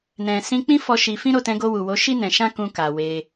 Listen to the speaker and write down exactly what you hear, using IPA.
n ɛ̃˨ s ĩ˧ k͡p ĩ˦ f ɔ˧ ʃ i˧ f ĩ˦ ɾ o˦˨ t ɛ̃˧ ɡ o˧ w u˨ w o˨˦ ʃ i˦ n ɛ̃˧ ʃ ã˦ k ũ˧ k a˨ w e˧

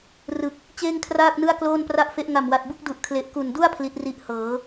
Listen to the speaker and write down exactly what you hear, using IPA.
r ɯ˨˩ k̚ | t͡ɕ eː˥˩ ŋ kʰ r aː˥˩ k̚ n ɯ˥˩ a̯ k l oː˥˩ n p r a˥˩ ʔ f e˦˥ ʔ ŋ a˨˩ m w a˨˩ t̚ b u˥˩ k̚ d u˨˩ ʔ kʰ l e˨˩ ʔ k u˨˩ n d u˥˩ a̯ pʰ l i˦˥ t̚ r i˦˥ ʔ h ɤː˩˦

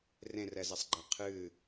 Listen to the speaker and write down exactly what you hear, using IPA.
r ẽ r ɛ z ɛ sˤ ɡ͡ǃ ɛ qʰ ɨ

